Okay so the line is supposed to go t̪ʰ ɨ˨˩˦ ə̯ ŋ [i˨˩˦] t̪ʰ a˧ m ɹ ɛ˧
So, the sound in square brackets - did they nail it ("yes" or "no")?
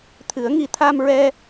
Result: yes